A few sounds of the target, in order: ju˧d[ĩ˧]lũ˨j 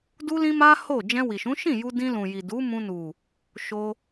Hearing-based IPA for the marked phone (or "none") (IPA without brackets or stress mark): ĩ˧